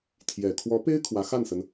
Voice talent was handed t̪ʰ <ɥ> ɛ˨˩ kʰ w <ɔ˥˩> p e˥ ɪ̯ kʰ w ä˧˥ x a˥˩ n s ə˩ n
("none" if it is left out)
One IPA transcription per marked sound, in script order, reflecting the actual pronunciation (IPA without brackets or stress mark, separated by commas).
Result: j, ɔ˧˥